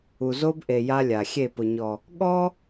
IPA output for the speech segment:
u˨ z o˦ b ʔ e˨ j a˦ lʲ a˨ xʲ e˦˨ p ʊ˨ ɲ ɔ˨ | ɠ ɔ˦

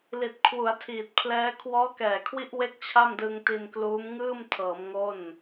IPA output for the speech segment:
l i˨˩ t̚ kʰ w u˩˦ a̯ tʰ iː˨˩ t̚ pʰ l ɛː˦˥ kʰ w ɔː˦˥ k ɛː˨˩ kʰ w i˦˥ ʔ w e˥˩ k̚ t͡ɕʰ a˥˩ m d ɯ˧ ŋ t i˧ n k l uː˦˥ m ŋ ɯː˥˩ m tʰ ɤː˩˦ m ŋ o˥˩ n

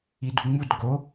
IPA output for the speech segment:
i d u ŋ͡m u d ɡ o

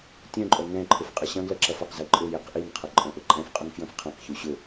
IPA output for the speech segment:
tʲ œ̃ ǃʼ œ ŋ ɛ̃ ǃʰ ʊ f qʼ ɐ ɕ ɐ̃ ɡ l ɐ ǁ ɐ f ɐ q z e ǃʼ ʊ j e q ʔ i n qʰ ɐ ǃʼ œ̃ ʔ ʊ ǃʼ ɛ̃ f qʼ ʊ ŋ f j œ̃ f qʰ ɛ̃ q ç u ɕ ʊ

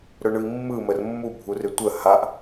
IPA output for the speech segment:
ɾ ɵ ɳ ɯ i̯ mː ɯ m ə r mː u bʱ u r ɪ tʷ ə h a ʔ

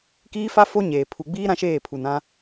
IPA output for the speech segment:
k iː˦ f a˦ f o˦ ɲ eː˨ pʰ u˨ ɡ͡b iː˦ ɾ ã˦ ʃ eː˦˨ pʰ u˨ n ã˦

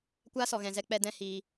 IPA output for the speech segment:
kʷ aː˦ s ɔ˨ ɣ ɛ̃˨ z ɛ˧ k͡p ɛ˦ d ɛ̃˦ h iː˧

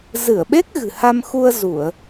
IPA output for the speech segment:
z ɨ˧˩ ə̯ ɓ e˦˥ k̚ ɣ ɨ̤˨˩ h a˧ m x u˧ ə̯ z u˧˩˨ ə̯

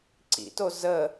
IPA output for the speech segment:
ǀ ḭ t o z ə

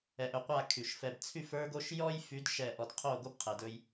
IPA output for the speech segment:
ɛ˨ ʔ ɵ˨ qʷ a˦˨ kʰ y˨ ʃ f ɛ˨ b t͡sʰ y˦˨ f ə˞˦ ɡ o˦ ʃ j ɔ˦ j f y˨˦ d ʃ ɛ˦˨ ʔ ɔ˨ d qʰ o˦˨ ɡ o˦ b qʰ ɛ˨ d ɵ˦ j

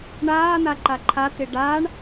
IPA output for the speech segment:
ɳ aː n̪ a ǃ a ǃʰ a t̪ ɪ ɖ a ɳ

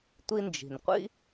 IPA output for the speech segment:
tʷ i˧ n d͡ʒ i̤˩ n qʷ ḭ˥

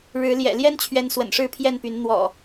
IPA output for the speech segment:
ɻ ɻ̩˨˦ l j ɛ̰˨˩ l j ɛ˦ n t͡ɕʰ ɥ ɛ˨˦ n s w ə̰˨˩ n ʂ ɻ̩˥˨ pʰ j ɛ˥˨ n p y˨˦ n n̪ w ɔ̰˨˩

